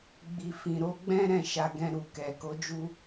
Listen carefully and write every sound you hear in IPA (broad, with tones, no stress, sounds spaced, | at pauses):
ɡ͡b i˨ f ĩ˨ ɾ o˧ ɡ͡b ɛ̃˦ ɾ ɛ̃˦˨ ʃ a˧ ɡ ɛ̃˧ ɾ u˨ k ɛ˨ k o˨˦ d͡ʒ u˧